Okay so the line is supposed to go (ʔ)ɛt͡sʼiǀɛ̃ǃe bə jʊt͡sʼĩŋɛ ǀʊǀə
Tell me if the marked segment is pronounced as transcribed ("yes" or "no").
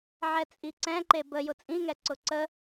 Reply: no